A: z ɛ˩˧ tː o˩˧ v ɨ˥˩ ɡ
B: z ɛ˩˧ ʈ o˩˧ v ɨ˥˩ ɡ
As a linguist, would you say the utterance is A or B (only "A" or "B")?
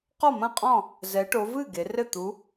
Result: B